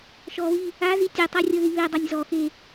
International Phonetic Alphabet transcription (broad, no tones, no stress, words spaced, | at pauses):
ʃɔβi | azi tʲetˤarʲɤði βedˤɤnʲ zɔxe